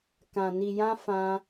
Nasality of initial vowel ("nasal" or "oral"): nasal